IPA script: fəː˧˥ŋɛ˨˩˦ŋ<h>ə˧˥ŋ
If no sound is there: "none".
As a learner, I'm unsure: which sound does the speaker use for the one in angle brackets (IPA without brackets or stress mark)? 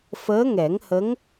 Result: h